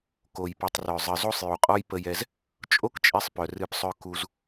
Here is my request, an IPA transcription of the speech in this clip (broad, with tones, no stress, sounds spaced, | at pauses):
k o˨ j p ɨ˨ tˤ r œ˨ zˤ ɨ˨ z o˦ sˤ j u˨ qʼ ɔ˦ j p ə˦ j ɛ˦ z | t͡ʃʼ o˦ k t͡ʃʼ e˧ sˤ p œ˨ r ɨ˦˨ p sˤ œ˦ k u˧ z